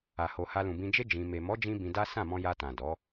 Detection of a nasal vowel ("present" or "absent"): present